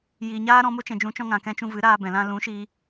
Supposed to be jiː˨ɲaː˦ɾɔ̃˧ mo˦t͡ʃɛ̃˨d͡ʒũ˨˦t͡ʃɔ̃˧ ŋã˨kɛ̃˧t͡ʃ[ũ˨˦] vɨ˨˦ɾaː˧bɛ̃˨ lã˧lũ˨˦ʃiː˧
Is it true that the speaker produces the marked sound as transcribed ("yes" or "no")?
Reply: no